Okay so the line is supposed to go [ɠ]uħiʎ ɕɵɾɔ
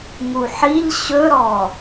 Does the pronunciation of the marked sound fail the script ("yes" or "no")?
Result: yes